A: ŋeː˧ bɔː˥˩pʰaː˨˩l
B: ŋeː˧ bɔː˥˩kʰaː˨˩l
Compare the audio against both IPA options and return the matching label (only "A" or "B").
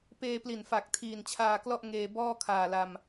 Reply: B